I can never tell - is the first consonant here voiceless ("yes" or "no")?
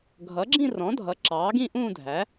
no